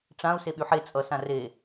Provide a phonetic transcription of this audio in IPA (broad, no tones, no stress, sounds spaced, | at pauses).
ʈ͡ʂ ã u̯ s e ɓ y ħ e t͡sʼ ʌ s ã r e